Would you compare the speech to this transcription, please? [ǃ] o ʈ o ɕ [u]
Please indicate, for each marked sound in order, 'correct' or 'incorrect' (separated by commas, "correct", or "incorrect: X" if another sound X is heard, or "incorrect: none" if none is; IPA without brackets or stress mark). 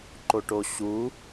correct, correct